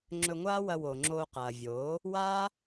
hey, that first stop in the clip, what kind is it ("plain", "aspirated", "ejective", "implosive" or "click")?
click